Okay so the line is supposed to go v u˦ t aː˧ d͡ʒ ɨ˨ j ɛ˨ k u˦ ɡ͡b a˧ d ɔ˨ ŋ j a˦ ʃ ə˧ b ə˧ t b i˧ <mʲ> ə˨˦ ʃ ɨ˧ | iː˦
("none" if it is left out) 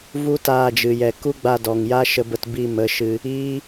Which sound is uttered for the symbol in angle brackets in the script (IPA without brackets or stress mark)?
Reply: m